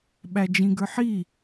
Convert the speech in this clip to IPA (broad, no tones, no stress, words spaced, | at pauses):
ɓæd͡ʒĩɡə˞ħi